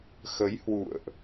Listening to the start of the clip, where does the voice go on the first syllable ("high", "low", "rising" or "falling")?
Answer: rising